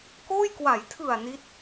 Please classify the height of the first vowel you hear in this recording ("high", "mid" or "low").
mid